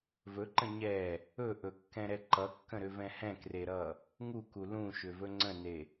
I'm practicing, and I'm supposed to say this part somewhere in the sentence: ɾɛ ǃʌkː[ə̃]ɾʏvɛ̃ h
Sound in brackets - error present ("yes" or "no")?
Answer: no